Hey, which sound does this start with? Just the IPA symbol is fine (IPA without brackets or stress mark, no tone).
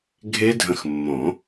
ɡʱ